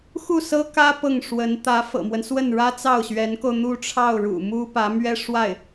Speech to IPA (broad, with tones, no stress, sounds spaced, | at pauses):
x u˥˩ s ɤ˥ k ä˥ p ɤ˥˩ ŋ ʂ w ə˧˥ n t̪ ä˧˥ f ɤ̰˨˩ m w ə˦ n s w ə˥˩ n ɻ ä˥ t͡s ɑ˥˩ ʊ̯ ɕ ɥ ɛ˧˥ n k o˧ ʊ̯ n̪ u˥˧ ʈ͡ʂʰ ɑ˥˩ ʊ̯ ɻ ṵ˨˩ m u˥ p ä˧˥ m ɥ ɛ˥ ʂ w a˥˩ ɪ̯